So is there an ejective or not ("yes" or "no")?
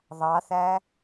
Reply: no